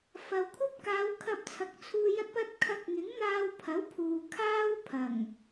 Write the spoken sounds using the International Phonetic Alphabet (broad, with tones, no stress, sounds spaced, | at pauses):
f ɐ˨ w kʷʰ ɐ˥ p̚ k aː˨˧ w kʰ ɐ˧ p̚ t͡sʰ ɐ˨ k̚ t͡sʰ uː˧ j ɐ˥ t̚ p ɐ˥ t̚ kʰ ɐ˧ k̚ ŋ ɪ˨˥ ŋ n̪ aː˧ w pʰ ɐ˨˥ w pʰ uː˨ kʰ aː˥ w pʰ ɐ˨˩ ŋ